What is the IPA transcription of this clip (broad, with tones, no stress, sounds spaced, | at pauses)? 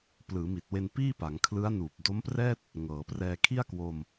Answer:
p l ɯː˩˦ m i˨˩ t̚ w e˧ n p iː˥˩ p a˩˦ ŋ kʰ l ɯ˦˥ a̯ n uː˨˩ p̚ d o˦˥ m p r ɛː˥˩ t̚ | ŋ ɤː˩˦ p r ɛː˧ kʰ i˥˩ a̯ k w o˧ m